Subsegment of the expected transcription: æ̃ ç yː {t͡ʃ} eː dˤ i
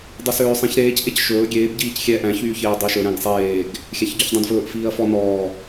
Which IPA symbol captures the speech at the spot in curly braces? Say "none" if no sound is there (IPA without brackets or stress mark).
ç